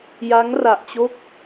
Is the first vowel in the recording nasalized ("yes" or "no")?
no